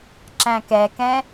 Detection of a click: present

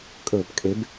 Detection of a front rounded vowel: absent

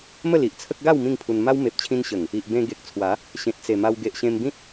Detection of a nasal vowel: present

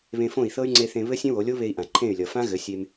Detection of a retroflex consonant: absent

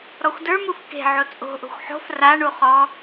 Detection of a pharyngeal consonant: present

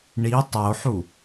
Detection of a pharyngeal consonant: present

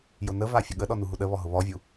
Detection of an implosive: present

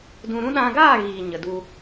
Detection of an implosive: present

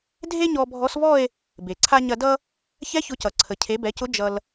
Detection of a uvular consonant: absent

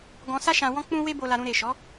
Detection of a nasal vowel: present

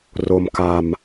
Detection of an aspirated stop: absent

